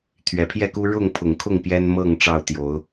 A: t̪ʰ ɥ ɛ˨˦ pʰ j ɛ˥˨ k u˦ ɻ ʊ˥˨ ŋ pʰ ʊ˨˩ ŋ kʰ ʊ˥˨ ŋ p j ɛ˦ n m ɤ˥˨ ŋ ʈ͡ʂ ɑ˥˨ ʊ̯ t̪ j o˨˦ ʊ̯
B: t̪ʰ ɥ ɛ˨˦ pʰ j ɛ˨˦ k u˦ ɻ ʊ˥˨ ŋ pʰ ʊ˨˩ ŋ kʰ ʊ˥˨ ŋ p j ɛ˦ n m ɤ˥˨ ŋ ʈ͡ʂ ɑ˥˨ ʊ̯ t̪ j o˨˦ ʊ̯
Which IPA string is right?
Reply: A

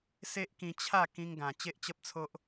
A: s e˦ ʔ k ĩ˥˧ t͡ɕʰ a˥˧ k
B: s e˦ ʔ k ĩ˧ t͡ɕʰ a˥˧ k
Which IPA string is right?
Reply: B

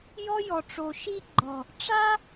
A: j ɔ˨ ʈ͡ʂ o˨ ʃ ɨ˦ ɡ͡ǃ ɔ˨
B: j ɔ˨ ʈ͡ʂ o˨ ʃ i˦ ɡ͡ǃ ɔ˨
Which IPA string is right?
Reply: B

